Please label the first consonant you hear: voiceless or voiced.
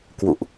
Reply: voiceless